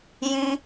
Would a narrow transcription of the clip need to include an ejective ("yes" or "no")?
no